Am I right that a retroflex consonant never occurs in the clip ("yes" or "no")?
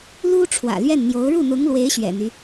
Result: no